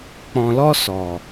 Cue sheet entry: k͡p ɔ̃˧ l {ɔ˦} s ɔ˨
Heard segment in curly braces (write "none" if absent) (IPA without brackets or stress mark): ɔ˦